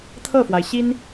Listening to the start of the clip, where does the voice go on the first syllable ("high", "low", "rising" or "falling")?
falling